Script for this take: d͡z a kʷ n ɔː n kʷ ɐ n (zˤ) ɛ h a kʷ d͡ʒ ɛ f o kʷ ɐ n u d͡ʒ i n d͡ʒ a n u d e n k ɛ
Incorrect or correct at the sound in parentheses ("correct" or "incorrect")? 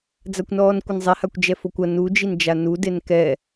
correct